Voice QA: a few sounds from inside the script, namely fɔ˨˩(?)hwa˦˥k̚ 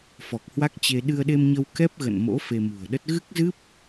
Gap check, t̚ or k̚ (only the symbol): k̚